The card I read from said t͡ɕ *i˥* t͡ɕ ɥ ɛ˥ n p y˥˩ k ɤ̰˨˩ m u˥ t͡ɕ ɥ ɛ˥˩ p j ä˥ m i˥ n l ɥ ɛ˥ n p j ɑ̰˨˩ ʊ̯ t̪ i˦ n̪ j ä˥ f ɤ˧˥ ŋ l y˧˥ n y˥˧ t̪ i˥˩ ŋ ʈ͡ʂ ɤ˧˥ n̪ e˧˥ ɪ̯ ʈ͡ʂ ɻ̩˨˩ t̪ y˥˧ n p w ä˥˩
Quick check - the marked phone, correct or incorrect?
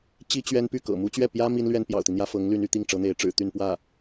correct